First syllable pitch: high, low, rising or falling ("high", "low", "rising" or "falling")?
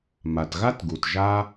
low